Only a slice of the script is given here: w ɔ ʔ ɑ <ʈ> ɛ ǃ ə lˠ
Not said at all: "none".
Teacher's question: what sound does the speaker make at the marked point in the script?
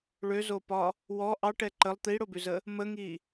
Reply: ʈ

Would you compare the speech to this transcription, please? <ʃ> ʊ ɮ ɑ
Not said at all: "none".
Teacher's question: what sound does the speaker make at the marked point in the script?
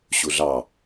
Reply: ɕ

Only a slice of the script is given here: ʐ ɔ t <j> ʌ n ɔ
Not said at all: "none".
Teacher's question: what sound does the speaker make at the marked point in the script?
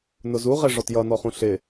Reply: j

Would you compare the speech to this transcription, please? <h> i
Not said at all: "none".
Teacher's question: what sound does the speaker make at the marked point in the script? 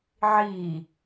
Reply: ʕ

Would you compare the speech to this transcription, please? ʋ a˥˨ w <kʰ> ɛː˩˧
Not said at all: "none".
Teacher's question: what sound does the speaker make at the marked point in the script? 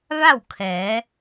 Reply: kʰ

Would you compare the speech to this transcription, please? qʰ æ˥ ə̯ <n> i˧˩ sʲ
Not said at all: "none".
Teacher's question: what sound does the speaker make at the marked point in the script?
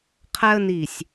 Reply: n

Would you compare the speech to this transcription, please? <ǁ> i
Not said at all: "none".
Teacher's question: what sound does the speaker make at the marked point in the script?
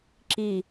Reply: ǁ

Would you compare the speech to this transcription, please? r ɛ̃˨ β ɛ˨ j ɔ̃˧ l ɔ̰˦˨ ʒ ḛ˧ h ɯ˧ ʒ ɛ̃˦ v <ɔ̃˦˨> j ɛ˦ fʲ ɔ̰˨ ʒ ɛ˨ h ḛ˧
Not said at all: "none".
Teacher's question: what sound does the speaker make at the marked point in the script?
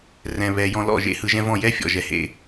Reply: ɔ̃˦˨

